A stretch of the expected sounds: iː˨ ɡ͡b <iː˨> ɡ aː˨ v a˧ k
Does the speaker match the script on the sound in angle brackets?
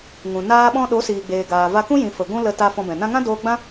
no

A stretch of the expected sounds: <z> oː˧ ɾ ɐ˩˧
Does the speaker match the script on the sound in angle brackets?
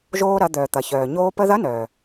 no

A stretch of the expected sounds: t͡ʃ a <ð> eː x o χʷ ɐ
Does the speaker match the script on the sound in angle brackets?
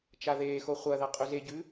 yes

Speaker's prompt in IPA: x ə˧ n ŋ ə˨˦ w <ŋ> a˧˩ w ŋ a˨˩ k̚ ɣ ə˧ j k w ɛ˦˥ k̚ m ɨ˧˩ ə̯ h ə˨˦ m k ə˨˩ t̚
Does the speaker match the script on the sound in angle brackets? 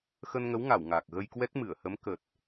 yes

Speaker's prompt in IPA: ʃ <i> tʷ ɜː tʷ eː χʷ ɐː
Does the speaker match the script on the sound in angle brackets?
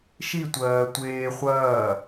yes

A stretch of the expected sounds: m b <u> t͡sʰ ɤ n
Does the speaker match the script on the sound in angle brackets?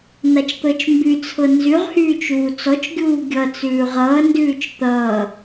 no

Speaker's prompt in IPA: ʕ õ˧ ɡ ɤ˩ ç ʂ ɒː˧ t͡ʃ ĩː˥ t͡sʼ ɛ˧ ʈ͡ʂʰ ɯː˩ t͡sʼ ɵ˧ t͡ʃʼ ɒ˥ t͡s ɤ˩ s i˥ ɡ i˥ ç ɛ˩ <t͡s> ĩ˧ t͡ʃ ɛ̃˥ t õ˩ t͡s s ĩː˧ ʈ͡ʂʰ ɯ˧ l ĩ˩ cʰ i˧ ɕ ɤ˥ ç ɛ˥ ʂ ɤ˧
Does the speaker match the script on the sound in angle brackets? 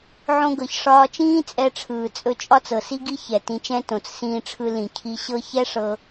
no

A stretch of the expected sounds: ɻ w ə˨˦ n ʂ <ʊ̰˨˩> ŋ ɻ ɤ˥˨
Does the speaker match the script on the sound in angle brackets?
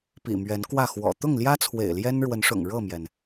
yes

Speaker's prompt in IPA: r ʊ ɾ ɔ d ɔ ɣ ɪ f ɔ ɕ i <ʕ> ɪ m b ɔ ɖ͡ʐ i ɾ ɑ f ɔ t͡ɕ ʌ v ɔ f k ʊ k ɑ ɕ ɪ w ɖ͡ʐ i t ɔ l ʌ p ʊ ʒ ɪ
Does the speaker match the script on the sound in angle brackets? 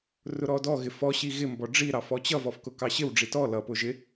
no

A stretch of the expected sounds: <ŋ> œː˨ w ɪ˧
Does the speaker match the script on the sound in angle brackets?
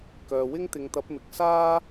no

